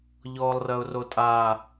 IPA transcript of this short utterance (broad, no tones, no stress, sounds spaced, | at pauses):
ʎ ɔː lˠ r ɐ ʊ̯ r o tʼ aː